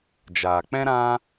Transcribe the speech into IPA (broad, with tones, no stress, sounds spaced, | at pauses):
d͡ʒ aː˨ k͡p ɛ̃˦ ɾ ã˦